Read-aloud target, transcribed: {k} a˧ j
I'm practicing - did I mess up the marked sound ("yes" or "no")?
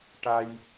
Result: yes